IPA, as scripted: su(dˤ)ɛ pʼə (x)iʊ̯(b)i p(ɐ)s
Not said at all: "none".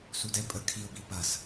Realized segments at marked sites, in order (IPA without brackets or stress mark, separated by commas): d, kʰ, b, ɐ